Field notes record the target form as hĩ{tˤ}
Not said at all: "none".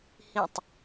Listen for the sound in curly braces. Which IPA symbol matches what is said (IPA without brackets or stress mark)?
tˤ